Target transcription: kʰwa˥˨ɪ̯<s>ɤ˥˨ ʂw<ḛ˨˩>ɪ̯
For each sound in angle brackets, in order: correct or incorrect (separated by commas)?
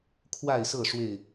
correct, incorrect